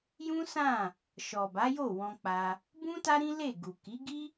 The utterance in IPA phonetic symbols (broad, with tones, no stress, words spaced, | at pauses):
jũ˦sã˦˨ | ʃɔ˨ba˨˦jo˦˨ wɔ̃˧k͡pa˧ | bũ˦ ta˦ɾĩ˦ le˦˨ɡu˨ ki˨˦ɡi˦